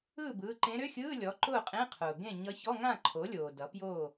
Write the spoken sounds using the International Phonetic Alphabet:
ɯː˥˨bɯː˩˧˩ǃẽ˧˥ ɾʏ˧˥˧xʲɯː˧˥˧lʲɔ˩˥ ǃʊː˥˨qʼẽ˧˥˧qʰʊː˩ ɡẽ˥˨ ɲʌ˧˥ çɔ˧˥˧ŋã˥˨ǃʰo˩˥lʲoː˩ dʌ˩˥pjoː˥˨

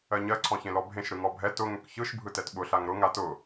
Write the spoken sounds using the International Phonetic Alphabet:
ɜɲɜ ǀʰɔ̃çẽlɔbʱẽʃ ɾɯŋɔbʱɛ tʊ ŋʏkçɯʃ bʱɯtɛtɓʊ ɬaŋɾʊ ŋatʊ

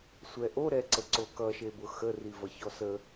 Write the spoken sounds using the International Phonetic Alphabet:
sʷɛʔoɾɛǀə ǀokʌʃebʊ xə rivʌçɔsə

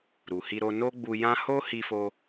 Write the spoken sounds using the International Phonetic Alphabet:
ɾu˨hi˧ ɾo˧no˦ ɡ͡bu˧jã˦ ho˦hi˧fo˧

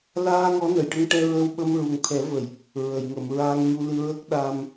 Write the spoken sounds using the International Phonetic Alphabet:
laː˧ ŋɔ˧˥nə˨˩˨jʈə˧ŋʈɛ˧ ɹə˧wɓə˧m ɹu˨˩ŋt̪ʰɛ˨˩˦və˨˩˨j | ɹə˨˩˨jŋə˨˩˨m ɹaː˧ŋɲu˧ lɨ˧ɹəː˦˥k̚ɗaː˧m

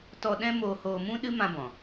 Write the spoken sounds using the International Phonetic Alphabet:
tɔ˧ɗɛ̃˦ moː˧hoː˧mũ˦ ɗɨ˦mã˧bɔ̃˨

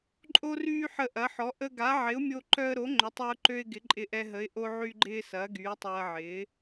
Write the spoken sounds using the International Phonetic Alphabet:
ǃʼo˧ryː˧ ħə˧ʔɐ˩˥ħɔ˩˥ ʔə˧ɡa˩˥ʕɪ˩˥ʊ̯ mʲo˧ǃœ˧ə̯ɾo˩˥ ŋ͡ǃʏ˩˥tˤœ˧ʊ̯ǃø˧ɪ̯ ɡɪ˩˥ǃʼɪ˧ʔɛ˧ɦə˩˥ɪ̯ ʔo˧ʕy˧ɡ͡ǃɪː˧ sɐː˩˥ɡyː˩˥tˤɐː˧ʕɪː˩˥

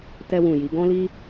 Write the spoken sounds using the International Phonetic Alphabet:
tɛ˧wũ˨ji˨˦ ɡɔ̃˦li˦

